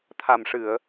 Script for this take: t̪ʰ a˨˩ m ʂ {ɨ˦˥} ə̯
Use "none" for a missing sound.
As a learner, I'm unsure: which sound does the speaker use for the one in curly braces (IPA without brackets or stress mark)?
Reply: ɨ˨˩˨